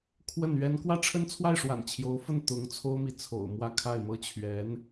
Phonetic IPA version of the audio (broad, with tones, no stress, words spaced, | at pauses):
kʰwə˥˩nɥɛ˥n kwä˥˩ʈ͡ʂʰə˥nt͡sʰwa˥˩ɪ̯ʂwa̰˨˩n t͡ɕʰjo˧˥ʊ̯fə˥˩n t̪ʊ˧˥ŋ t͡sʰo˥ʊ̯mi˨ t͡sʰo̰˨˩ʊ̯mwä˥kʰa˥˩ɪ̯mɤ˥ t͡ɕʰɥɛ˧˥n